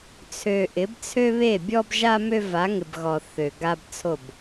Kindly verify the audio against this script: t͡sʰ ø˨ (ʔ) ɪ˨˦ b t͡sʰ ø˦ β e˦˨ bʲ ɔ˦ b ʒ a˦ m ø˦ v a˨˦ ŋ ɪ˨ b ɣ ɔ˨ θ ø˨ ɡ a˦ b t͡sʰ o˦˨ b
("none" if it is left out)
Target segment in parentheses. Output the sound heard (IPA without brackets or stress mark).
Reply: ʔ